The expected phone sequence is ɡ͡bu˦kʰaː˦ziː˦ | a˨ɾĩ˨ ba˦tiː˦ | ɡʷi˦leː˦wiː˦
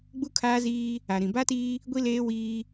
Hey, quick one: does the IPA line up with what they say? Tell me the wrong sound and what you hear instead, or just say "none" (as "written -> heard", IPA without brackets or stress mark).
none